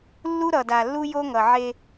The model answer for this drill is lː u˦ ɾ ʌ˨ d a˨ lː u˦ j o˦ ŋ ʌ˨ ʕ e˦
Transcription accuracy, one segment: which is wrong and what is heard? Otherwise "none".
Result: none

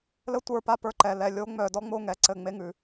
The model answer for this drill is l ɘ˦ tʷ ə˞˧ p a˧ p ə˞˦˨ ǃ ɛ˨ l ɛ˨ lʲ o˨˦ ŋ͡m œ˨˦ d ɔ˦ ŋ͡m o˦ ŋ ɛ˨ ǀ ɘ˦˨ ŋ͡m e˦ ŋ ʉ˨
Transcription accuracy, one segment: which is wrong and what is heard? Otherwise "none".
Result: none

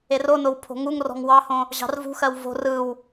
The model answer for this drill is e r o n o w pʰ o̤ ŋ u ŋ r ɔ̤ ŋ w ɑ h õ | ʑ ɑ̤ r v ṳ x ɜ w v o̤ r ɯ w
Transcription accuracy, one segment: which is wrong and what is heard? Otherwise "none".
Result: none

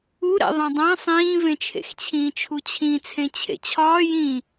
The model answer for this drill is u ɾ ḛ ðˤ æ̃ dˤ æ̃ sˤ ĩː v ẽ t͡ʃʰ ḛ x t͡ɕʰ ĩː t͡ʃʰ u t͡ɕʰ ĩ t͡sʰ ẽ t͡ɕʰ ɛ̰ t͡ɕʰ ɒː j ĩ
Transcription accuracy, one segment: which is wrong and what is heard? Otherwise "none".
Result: ɛ̰ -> ḛ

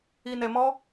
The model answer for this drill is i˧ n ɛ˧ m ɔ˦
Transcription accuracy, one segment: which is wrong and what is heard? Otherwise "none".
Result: none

